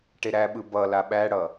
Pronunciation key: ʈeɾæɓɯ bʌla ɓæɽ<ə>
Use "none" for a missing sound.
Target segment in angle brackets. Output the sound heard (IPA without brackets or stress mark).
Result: ʌ